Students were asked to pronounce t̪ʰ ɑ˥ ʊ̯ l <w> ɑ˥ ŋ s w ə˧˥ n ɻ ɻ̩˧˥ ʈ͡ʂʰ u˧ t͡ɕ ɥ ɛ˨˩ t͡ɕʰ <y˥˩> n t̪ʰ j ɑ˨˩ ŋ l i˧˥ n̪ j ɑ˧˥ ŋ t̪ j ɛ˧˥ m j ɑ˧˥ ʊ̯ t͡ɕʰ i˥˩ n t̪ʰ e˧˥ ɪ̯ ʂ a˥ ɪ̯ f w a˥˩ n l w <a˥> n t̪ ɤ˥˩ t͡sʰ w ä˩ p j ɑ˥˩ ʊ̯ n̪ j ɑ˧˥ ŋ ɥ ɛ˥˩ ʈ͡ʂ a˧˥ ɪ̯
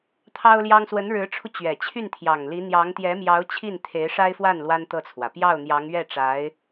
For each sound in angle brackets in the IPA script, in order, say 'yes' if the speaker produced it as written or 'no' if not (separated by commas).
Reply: no, yes, yes